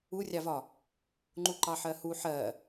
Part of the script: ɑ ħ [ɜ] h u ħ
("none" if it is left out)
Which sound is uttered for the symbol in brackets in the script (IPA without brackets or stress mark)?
ɜ